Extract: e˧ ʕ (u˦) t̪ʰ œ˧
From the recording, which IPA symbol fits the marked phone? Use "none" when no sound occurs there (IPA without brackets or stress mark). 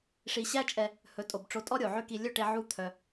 u˦